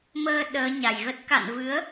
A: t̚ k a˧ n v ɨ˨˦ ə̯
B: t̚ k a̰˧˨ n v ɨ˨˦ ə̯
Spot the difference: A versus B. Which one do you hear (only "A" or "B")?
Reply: B